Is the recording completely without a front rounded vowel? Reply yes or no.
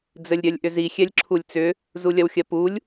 no